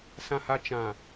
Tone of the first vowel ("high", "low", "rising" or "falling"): low